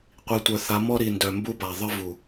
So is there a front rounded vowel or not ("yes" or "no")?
yes